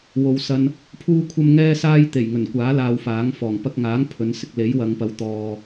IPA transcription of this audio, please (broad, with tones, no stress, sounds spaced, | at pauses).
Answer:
w o˨˧ w s ɐ˧ n | pʰ uː˥ kʷʰ ɐ˥ m ŋ ɛː˥ s aː˥ j t̪ e˨˩ j ŋ ɵ˨˩ n kʷ aː˨˥ l aː˧ w f aː˨˥ ŋ f ɔː˨˩ ŋ p ɐ˧ k̚ ŋ aː˨˥ ŋ pʰ ɵ˨˧ n s ɪ˧ k̚ l e˨˥ j w ɐ˨˧ ŋ p ɐ˨˥ w t̪ ɔː˨